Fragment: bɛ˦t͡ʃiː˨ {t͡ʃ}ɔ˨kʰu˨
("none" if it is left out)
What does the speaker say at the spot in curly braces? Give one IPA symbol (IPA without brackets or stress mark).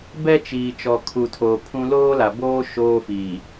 t͡ʃ